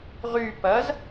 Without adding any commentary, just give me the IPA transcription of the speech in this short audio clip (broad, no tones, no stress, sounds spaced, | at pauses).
ʁ y p ɐ z